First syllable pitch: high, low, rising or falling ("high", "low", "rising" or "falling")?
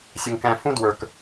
low